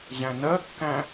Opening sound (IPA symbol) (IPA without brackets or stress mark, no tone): ʑ